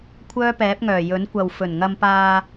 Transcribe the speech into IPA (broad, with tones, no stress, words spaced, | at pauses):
kʷʰœː˥pɛː˨˥p̚ŋœː˨˩ jɵ˨˥nkʷɐ˨w fɵ˨˩nŋɐ˧mpaː˧